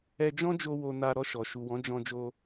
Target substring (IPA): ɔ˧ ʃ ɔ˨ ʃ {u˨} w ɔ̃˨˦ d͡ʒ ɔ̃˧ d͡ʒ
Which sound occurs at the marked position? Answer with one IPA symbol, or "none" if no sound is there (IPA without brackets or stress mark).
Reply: u˨